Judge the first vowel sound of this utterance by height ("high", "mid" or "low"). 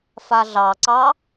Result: low